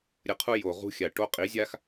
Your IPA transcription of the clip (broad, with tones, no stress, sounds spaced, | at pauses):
ɾʲ ə˧ qʰ u˦ j o˨ ʁ ṳ˧ xʲ a˨ ʈ o˦ qʼ i˨˦ zʲ a˦ x